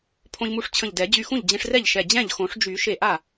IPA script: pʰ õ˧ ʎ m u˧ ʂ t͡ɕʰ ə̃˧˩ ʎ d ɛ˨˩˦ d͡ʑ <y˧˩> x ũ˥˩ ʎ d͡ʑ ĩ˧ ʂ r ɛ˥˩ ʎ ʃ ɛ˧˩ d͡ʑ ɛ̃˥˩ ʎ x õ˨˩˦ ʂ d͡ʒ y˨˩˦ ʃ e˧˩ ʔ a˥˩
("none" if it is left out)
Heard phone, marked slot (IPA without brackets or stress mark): y˧˩